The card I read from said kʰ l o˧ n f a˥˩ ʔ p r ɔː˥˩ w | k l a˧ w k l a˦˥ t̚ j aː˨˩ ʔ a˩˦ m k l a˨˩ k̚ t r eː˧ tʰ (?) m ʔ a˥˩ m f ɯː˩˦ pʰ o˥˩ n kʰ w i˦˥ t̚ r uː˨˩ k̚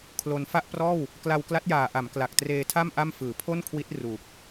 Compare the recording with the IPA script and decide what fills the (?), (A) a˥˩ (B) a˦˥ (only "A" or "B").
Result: A